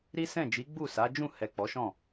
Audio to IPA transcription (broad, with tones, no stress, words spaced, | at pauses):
ɾi˦sɛ̃˦˨d͡ʒi˨˦ ɡ͡bu˦˨sa˨˦ d͡ʒũ˦˨ hɛ˨k͡pɔ˨˦ʃɔ̃˦˨